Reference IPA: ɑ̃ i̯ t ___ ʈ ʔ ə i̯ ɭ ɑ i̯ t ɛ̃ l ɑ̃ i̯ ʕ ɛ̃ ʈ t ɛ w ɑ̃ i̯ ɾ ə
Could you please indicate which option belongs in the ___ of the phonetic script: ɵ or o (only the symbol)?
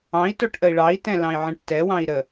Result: o